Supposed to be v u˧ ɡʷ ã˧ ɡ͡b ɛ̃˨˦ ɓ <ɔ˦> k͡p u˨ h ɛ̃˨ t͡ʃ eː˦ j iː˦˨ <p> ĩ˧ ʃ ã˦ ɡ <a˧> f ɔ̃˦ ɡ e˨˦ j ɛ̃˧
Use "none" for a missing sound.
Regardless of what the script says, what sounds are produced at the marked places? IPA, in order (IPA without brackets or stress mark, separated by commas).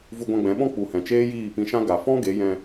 ɔ̃˦, p, a˨